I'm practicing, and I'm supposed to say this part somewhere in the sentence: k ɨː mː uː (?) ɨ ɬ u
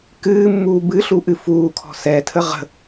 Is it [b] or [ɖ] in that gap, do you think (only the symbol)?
b